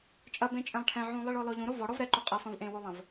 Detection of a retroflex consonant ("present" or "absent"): present